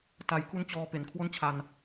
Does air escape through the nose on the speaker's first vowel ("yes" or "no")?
no